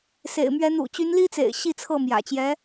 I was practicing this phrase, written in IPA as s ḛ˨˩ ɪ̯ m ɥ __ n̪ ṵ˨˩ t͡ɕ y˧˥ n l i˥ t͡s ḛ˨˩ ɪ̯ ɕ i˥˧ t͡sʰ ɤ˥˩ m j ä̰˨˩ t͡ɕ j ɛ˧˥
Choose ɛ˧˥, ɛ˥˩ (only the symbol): ɛ˧˥